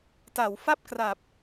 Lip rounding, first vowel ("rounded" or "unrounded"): unrounded